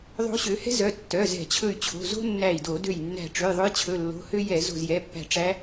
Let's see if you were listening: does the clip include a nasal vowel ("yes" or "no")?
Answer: no